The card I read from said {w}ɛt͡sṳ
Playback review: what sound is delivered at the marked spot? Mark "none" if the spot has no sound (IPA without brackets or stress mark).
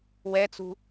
w